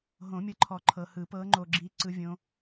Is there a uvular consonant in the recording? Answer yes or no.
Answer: no